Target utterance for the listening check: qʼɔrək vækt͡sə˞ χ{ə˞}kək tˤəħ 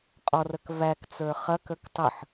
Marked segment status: incorrect: ɐ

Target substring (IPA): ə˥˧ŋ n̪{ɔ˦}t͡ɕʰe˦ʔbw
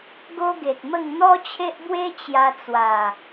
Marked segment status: correct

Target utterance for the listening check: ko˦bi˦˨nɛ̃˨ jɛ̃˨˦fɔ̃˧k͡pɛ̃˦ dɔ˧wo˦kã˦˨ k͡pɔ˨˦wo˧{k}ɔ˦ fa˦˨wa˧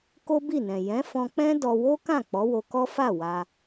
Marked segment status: correct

